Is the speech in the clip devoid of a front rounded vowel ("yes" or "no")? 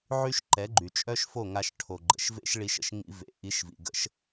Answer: no